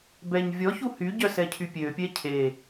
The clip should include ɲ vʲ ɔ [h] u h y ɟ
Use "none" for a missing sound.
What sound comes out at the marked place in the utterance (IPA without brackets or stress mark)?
ç